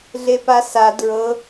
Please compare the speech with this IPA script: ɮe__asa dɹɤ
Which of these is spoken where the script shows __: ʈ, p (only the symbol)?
p